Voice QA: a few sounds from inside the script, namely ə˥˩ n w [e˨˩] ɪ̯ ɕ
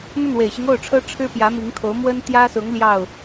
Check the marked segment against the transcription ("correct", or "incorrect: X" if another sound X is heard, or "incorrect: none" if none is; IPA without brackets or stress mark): correct